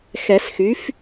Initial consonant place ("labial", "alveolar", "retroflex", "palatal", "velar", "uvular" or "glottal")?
velar